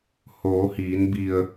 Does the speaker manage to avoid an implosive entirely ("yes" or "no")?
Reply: yes